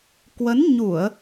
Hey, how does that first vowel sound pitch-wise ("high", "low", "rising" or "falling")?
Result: rising